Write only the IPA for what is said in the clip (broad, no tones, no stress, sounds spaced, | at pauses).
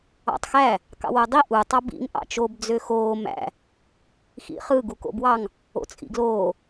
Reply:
ɑ̰ tˤ x æ | k ɑ̰ w o dˤ i ʔ u tˤ ɑ b ḭ ŋ ʔ ɑ̰ t͡ʃ o b d͡z ø x oː m æ̰ | x ḭ χ ɯ ɡ u k o̰ b w ɑ ŋ | o̰ t͡sʼ ḭ ɡ l oː